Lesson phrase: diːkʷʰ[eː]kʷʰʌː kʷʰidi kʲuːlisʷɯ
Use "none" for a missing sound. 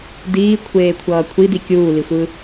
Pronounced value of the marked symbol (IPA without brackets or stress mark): eː